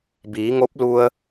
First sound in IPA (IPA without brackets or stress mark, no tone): b